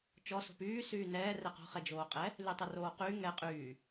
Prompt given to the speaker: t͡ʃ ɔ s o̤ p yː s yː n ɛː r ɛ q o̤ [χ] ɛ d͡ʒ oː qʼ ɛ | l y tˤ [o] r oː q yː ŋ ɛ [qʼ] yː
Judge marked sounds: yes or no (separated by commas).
yes, yes, yes